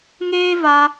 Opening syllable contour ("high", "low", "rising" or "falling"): high